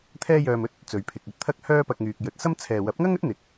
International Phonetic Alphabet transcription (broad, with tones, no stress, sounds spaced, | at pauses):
t̪ʰ ɛː˥ j œː˧ m ɵ˥ t̚ | t͡s ɵ˨ ɥ pʰ ɪ˨ k̚ ɵ˥ t̚ t̪ʰ ɐ˥ k̚ h œː˥ p ɐ˧ k̚ ŋ yː˨ k̚ j ɵ˨ t̚ s ɐ˥ m t͡sʰ ɛː˨ w ɐ˨˥ p̚ ŋ ɐ˥ ŋ ɵ˥ t̚ n̪ ɪ˨˥ k̚